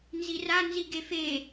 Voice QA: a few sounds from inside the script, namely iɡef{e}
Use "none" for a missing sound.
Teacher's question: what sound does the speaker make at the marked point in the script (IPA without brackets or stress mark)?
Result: e